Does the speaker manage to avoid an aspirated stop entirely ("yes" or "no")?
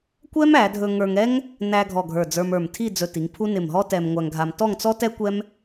no